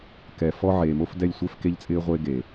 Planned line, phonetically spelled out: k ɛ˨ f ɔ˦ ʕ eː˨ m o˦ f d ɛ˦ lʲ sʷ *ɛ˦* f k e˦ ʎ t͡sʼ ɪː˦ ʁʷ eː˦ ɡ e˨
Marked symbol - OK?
yes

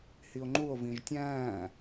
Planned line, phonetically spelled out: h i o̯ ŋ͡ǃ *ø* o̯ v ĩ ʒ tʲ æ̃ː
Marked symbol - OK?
no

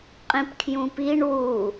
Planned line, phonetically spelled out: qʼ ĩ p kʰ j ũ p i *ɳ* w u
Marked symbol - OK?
yes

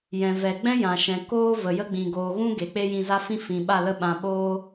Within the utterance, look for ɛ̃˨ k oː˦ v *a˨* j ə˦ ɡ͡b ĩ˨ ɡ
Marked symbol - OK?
no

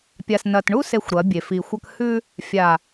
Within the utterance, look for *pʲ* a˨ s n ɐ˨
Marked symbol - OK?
yes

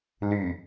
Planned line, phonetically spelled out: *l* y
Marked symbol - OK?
yes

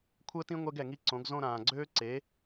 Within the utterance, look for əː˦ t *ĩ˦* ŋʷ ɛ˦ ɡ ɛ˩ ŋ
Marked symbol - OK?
yes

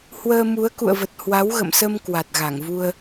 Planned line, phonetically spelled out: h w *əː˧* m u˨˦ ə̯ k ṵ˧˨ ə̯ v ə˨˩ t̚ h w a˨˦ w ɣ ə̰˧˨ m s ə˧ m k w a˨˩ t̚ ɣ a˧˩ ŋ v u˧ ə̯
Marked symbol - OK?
yes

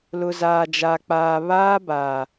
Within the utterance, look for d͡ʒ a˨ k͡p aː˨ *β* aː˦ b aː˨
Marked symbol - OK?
yes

